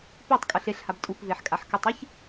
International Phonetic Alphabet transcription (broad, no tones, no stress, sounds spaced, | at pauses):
p i tˤ kʼ ɤ ɬ e ɬ h a b tʼ u p v e ħ kʼ a ħ k ɯ tˤ i ç